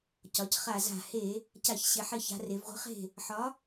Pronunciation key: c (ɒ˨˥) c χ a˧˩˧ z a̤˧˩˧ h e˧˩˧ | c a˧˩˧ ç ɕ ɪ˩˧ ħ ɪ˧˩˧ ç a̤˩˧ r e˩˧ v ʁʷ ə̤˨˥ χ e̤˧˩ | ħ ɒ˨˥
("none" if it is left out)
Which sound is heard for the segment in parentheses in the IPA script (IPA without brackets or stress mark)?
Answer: ɒ˩˧